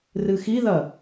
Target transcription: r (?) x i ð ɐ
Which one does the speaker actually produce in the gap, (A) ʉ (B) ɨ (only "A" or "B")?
B